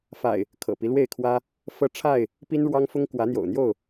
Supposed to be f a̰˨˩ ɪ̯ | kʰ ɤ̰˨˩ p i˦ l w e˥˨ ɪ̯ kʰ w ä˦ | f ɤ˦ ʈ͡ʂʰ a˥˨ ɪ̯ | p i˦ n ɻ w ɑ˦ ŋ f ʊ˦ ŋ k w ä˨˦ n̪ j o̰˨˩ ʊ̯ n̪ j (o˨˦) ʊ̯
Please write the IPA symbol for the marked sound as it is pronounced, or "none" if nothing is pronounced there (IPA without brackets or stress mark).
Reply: o˥˨